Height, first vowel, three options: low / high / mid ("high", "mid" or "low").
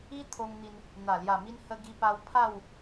high